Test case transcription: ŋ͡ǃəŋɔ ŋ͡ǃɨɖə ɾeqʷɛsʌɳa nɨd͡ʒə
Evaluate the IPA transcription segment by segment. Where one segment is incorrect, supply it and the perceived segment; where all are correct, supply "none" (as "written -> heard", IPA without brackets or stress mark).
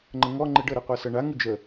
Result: n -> ŋ